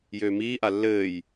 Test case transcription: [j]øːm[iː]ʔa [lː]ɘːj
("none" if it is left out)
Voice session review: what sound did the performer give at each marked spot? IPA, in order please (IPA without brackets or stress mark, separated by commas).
j, iː, lː